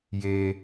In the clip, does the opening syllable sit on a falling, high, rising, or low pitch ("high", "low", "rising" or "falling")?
high